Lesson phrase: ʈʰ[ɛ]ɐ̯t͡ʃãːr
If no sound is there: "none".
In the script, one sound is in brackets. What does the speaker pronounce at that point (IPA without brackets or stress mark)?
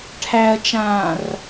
æ